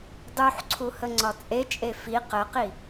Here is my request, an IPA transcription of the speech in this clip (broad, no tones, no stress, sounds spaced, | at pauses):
dˤ u ħ ǀʰ u h ə ŋ͡ǀ ɒ t͡sʼ e t͡ʃʼ e f i q ə q i